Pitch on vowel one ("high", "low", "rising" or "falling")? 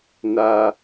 high